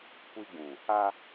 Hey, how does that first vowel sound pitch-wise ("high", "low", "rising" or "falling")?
high